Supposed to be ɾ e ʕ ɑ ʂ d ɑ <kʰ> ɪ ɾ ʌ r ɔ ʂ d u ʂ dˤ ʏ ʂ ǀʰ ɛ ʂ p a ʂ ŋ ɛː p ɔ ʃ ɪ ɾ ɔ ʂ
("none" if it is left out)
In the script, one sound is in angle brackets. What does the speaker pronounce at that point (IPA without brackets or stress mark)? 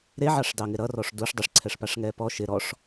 ŋ